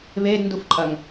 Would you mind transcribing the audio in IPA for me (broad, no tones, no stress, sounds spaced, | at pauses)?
β e d n d u f ǃʼ ɐ ŋ